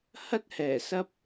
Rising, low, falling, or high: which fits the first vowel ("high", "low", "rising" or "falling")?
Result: high